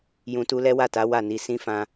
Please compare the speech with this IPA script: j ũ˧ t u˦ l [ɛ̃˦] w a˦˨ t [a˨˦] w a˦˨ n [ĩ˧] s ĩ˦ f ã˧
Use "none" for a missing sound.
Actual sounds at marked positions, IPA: ɛ˦, a˨˦, i˧

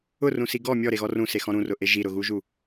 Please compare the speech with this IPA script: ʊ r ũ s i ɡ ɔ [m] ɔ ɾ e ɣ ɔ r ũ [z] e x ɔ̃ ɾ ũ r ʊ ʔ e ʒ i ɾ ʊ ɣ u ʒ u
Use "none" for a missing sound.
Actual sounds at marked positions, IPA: mʲ, s

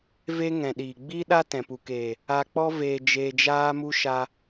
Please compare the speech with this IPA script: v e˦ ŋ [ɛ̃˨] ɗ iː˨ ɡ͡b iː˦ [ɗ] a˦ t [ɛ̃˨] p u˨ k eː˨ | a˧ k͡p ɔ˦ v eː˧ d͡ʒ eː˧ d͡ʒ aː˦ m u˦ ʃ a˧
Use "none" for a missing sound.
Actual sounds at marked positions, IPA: ɛ̃˨, ɗ, ɛ̃˨

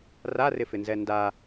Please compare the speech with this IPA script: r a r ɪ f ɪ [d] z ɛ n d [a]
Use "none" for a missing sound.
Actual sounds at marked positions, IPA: n, a

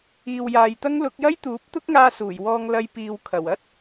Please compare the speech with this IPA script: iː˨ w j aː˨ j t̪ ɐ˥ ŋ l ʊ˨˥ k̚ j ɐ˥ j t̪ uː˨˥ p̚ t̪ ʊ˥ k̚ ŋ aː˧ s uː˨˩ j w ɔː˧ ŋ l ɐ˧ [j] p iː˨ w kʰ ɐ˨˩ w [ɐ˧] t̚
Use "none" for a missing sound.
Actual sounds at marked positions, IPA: j, ɐ˥

